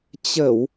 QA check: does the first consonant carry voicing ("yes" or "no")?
no